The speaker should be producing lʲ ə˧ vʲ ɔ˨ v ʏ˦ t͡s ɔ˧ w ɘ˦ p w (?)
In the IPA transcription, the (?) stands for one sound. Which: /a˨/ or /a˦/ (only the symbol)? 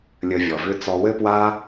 a˦